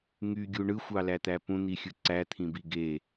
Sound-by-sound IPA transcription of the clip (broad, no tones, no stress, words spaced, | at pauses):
ŋyɡʲu ɳɯxʷɑlæt̪æ pũn̪ixʲɯ ǀæt̪ʰĩbi ɡe